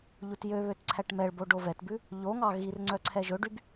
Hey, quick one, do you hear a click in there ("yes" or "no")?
yes